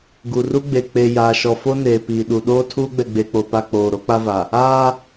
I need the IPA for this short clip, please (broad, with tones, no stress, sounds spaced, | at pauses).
ɡ u˨ r u˦ ɡ͡b e˨ k͡p e˨ j aː˨ ʃ ɔ˨ f o˦ n eː˨ p iː˨ ɗ u˨ ɗ oː˦ tʰ uː˦ ɡ͡b ɛ˨ ɡ͡b e˨ k͡p o˨ p a˨ k͡p oː˨ ɾ o˦ k͡p a˦ v a˨ | aː˦